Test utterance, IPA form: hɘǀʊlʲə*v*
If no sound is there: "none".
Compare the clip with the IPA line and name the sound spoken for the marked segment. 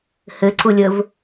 v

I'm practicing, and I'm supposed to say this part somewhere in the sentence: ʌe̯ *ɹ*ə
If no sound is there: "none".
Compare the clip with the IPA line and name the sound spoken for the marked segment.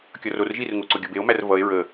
ɹ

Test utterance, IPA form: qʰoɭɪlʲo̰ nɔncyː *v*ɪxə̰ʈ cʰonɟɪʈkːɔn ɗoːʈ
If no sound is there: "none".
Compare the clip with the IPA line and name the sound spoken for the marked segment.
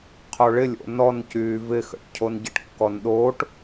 v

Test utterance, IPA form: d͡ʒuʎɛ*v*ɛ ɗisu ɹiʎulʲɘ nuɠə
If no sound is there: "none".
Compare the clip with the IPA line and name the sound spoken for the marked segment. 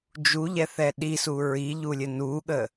θ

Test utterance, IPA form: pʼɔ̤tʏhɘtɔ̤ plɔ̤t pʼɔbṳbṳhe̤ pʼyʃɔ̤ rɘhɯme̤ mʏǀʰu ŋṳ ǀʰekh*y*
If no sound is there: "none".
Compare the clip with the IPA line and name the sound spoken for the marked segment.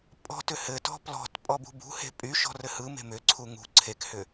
ʏ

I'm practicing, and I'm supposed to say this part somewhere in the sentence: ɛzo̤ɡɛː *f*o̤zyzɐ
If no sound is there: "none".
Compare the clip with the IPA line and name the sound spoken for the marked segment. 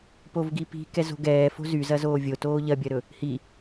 f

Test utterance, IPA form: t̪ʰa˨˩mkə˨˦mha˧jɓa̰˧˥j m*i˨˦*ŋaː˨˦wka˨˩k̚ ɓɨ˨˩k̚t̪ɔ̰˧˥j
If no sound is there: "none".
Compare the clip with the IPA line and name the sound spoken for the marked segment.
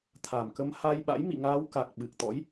ḭ˧˨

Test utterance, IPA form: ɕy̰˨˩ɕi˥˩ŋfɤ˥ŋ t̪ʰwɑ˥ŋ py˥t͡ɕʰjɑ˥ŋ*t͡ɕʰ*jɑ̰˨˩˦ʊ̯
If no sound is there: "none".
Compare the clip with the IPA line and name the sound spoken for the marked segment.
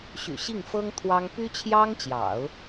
t͡ɕ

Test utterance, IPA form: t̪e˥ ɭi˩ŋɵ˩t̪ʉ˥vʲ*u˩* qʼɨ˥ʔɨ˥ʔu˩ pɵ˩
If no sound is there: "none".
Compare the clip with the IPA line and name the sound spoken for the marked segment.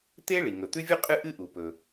u˥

